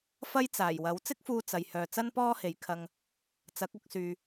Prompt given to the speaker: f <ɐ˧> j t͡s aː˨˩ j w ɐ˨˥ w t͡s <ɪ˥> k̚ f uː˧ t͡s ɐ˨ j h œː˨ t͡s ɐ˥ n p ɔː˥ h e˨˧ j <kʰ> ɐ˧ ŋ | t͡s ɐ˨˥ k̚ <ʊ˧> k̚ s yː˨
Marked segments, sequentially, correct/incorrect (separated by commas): incorrect, correct, correct, correct